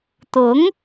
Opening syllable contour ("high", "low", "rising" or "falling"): rising